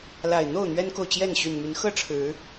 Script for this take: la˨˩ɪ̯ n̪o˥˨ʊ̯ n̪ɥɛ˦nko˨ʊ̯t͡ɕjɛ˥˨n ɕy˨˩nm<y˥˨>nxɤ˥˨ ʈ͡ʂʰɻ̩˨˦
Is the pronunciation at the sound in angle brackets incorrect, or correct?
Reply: incorrect: y˨˦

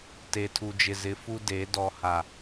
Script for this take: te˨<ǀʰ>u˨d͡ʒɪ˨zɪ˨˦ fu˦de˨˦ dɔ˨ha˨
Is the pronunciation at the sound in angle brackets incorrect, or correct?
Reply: incorrect: tʰ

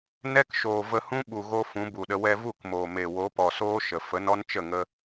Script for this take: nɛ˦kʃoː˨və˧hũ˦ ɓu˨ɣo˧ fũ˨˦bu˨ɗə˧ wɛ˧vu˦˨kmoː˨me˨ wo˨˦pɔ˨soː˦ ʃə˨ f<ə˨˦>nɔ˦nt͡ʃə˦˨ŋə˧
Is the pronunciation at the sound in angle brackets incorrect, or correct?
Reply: correct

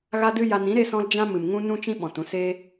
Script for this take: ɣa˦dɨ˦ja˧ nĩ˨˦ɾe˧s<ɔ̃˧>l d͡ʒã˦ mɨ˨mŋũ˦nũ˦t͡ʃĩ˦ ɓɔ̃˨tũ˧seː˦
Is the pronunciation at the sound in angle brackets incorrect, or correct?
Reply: correct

